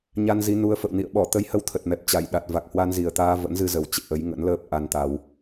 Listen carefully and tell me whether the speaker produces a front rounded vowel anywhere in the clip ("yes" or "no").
no